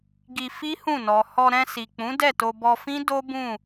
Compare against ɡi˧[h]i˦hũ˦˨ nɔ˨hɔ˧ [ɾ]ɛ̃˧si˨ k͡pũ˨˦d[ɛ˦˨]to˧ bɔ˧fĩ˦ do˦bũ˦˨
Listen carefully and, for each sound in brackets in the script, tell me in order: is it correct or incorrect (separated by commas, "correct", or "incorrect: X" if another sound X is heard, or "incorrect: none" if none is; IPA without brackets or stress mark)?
incorrect: f, correct, correct